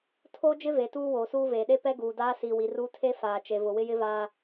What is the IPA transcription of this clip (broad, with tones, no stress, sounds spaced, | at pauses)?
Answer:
tʰ oː˦ d͡ʒ ɪ˦ v e˨ t uː˦ w oː˨ s uː˦ v eː˨ ɗ e˦ p ɛ˦ ɡ uː˨ d aː˦ s i˨ w i˨ r u˦ tʰ e˦ f aː˨ t͡ʃ e˨ v ʊ˨ w ɪ˦ j ɪ˦ v aː˦